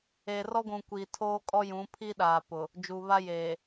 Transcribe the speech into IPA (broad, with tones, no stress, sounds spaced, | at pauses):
e˨ r ɔ˦ ɡʷ ũ˨ kʷ iː˨ tʰ oː˦ kʼ ɔ˦ j ũ˨˦ pʰ i˦ ɗ aː˨ p ʊ˨ | d͡ʒ uː˨ β a˦ j eː˨